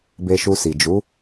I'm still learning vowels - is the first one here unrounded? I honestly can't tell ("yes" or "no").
yes